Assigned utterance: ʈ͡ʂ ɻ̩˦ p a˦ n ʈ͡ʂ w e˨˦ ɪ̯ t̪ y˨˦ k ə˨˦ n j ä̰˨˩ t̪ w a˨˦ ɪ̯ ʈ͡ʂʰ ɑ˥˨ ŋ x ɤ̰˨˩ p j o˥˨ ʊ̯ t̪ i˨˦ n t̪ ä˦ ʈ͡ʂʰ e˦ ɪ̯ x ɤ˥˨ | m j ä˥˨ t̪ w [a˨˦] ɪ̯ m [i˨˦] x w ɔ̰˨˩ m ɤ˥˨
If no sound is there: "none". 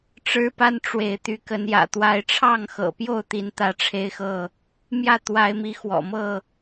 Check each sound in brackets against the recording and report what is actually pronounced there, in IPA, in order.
a˨˦, i˨˦

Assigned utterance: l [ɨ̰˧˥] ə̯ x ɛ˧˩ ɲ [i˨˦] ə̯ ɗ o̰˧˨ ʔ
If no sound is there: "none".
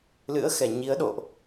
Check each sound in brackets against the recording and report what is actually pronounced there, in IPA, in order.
ɨ̰˧˥, i˨˦

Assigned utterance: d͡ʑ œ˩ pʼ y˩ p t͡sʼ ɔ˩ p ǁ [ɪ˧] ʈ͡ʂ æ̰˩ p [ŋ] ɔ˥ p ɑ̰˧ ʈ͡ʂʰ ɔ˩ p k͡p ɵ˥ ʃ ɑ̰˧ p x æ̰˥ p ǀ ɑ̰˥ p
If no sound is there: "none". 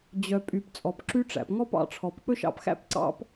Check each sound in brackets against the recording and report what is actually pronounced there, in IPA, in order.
y˧, ŋ

